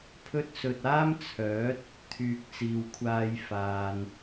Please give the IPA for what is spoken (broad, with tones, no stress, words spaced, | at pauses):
pʰɵ˥t̚sɵ˧t̚ aː˥mt͡sʰœː˨˥t̚ | t̪ʰyː˨k̚t͡siː˨wkʷʰaː˧j faː˨n